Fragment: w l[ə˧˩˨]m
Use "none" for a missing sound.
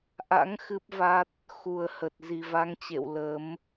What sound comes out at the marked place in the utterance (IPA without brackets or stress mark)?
ə˨˦